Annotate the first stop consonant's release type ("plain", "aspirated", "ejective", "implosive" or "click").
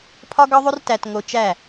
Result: aspirated